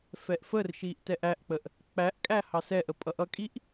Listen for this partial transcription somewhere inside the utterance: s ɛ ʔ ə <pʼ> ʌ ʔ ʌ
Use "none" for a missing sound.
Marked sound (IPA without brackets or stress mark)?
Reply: pʼ